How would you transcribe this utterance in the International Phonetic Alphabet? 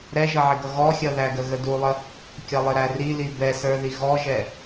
ɾ ɛ ʒ ʌ ʕ ɪ ɡ ʌ ɣ ɔ xʲ ʌ ð æ ɡ ə ɣ ə d u lˠ ə | kʲ ʌ lˠ ɪ ɾ æ r i l i b ɛ s ə˞ ð i ɣ ɔ ʒ ɛ

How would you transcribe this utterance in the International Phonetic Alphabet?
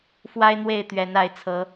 f w a˦ ɪ̯ n̪ w e˥˨ ɪ̯ t̪ ɥ ɛ˨˦ n a˨˦ ɪ̯ t͡sʰ ɤ˨˦

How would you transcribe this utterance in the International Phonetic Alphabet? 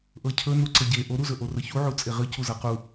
ʔ ɤ cʰ ɵ n u ǀ ə ɟ e ʔ o ɾ u z ɵ ʔ o r ə ç u ʕ u t͡sʼ e ʁ ɨ c u z ɤ q u

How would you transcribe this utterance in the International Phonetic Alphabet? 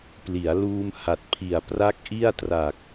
p l i˩˦ a̯ l uː˧ m h a˨˩ t̚ pʰ i˨˩ a̯ p r a˦˥ k̚ ʔ i˥˩ a̯ t r a˨˩ k̚

